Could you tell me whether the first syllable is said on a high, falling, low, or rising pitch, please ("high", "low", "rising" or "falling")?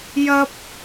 high